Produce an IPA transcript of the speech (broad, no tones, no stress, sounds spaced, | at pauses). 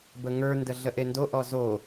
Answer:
b ə ŋ ə˞ n d ə ɮ ə ʔ e n d o ʔ ɔ z o